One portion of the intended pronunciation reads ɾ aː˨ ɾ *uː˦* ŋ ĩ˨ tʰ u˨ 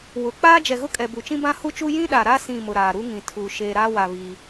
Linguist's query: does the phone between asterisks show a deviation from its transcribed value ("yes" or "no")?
yes